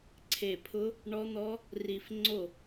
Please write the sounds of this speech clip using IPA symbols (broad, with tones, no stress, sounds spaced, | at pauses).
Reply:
ǀʰ e˧˩ pʰ ʊ˦˥ | ɳ ɔ˦˥ n̪ ɔ˦˥ | r i˧˩ f ŋ͡ǀ o˥˩